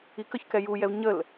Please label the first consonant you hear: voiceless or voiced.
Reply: voiceless